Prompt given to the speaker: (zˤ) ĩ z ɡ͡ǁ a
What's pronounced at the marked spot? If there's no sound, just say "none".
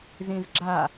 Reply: z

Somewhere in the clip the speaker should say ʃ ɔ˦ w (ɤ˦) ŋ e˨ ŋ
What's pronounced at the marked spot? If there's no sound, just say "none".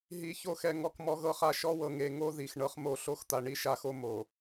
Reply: ɤ˨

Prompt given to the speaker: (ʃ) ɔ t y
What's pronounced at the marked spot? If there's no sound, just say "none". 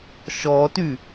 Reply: ʃ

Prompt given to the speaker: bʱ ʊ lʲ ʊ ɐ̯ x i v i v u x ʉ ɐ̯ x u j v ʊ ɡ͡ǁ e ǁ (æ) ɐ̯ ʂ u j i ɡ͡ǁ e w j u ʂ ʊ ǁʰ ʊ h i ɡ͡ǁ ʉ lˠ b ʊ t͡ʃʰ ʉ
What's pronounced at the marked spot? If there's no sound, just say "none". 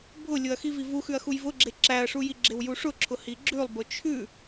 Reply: æ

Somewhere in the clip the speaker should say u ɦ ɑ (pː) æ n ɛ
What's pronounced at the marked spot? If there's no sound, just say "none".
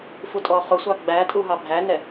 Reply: bʱ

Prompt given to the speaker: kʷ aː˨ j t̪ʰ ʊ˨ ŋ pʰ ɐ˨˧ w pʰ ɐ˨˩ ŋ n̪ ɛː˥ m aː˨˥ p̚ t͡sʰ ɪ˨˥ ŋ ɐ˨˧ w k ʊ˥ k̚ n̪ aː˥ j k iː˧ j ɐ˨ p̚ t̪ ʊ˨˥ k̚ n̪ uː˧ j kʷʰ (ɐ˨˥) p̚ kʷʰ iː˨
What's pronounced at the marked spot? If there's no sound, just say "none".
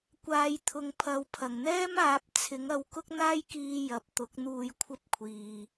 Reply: ɐ˥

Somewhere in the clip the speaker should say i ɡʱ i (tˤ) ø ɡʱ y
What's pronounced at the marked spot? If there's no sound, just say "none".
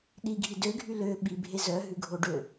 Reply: d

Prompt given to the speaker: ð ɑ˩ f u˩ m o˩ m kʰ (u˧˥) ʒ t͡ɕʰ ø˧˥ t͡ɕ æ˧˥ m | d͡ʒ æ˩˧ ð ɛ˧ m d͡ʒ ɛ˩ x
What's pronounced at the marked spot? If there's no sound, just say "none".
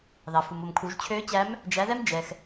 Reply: u˩˧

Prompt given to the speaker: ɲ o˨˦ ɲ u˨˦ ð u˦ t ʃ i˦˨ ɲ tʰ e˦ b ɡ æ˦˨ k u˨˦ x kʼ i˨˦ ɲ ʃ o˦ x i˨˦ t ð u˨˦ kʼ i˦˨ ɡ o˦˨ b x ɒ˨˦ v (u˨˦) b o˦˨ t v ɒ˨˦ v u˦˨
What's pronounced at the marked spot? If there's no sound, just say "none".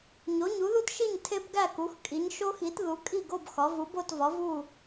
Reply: u˨˦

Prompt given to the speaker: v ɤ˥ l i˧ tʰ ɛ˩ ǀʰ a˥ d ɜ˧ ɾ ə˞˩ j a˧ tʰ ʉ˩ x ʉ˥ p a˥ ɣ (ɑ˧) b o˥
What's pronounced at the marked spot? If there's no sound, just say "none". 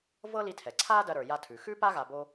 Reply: a˧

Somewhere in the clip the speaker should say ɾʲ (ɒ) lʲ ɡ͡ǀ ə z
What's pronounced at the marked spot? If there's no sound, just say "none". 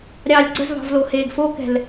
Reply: ɑ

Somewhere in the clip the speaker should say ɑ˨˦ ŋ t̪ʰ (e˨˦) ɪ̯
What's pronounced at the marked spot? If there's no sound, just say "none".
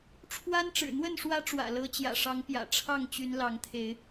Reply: e˨˦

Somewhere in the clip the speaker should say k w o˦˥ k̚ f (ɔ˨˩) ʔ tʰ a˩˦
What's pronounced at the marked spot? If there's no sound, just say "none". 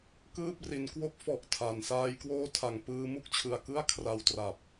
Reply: ɔ˨˩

